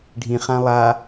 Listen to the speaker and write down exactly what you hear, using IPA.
ɖʱ ĩ χ ã lˠ a

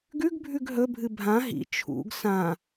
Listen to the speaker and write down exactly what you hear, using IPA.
ɡ ʉ ɡ bʱ ʉ ɡ ɦ ɵ bʱ ɨ bʱ ã ɦ ḭ t͡ʃʰ ṵ ɡ s ã

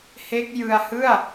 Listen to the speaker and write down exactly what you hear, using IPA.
h e˦˥ k̚ j ɯ˧ a̯ h ɯ˥˩ a̯

